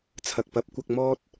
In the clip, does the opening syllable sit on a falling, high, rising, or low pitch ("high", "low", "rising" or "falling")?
low